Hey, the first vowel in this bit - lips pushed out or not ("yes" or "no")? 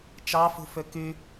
no